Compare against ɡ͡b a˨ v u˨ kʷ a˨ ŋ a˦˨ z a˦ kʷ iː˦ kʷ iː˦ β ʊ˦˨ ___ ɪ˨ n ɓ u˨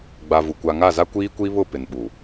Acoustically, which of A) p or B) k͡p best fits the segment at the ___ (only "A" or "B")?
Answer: A